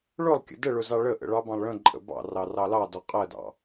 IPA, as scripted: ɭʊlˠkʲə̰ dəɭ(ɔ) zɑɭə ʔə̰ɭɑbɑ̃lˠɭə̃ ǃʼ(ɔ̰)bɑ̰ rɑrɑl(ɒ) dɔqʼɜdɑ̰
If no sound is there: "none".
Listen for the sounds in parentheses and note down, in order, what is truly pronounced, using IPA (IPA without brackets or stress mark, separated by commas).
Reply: ʊ, ə̰, ɑ